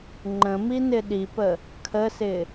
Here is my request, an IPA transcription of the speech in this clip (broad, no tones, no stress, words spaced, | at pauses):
ŋ͡ǃə̃mi nɪɗipə | kʰəsɪ